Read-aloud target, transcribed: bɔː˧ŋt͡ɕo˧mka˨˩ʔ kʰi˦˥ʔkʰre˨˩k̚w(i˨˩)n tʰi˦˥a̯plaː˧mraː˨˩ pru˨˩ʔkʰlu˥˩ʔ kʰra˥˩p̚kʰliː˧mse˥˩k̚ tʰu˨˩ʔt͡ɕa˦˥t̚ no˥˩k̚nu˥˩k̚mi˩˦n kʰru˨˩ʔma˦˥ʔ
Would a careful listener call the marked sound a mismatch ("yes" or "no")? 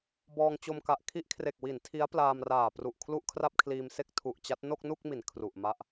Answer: yes